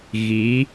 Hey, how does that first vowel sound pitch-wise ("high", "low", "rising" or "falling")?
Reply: rising